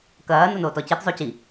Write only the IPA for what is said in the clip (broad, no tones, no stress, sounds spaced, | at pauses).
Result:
k ɐː n o n oː t ɔ c i t zˤ o c i